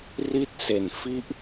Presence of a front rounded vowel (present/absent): absent